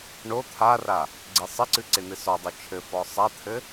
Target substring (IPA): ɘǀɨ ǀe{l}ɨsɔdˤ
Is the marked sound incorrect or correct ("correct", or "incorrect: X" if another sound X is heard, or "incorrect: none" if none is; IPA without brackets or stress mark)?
incorrect: n̪